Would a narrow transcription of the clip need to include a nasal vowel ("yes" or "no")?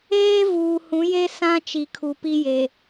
yes